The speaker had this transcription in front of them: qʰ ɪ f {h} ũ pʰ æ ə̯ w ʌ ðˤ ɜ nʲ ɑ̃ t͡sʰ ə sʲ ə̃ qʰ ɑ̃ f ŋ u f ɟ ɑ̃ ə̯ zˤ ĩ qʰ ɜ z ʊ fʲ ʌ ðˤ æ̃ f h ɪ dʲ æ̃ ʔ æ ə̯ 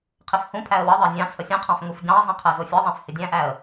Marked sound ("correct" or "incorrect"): correct